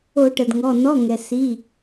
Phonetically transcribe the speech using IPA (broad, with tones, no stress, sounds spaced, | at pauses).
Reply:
o˧˩˧ ʈ ə˩ d ŋ ɔ˩˧˩ n ɔ˩˧˩ ŋ ɛ˩ s i˩˧˩